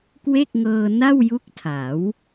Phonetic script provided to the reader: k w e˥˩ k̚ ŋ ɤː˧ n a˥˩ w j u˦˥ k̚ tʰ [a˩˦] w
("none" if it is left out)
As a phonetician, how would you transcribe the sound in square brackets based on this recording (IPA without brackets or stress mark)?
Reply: a˩˦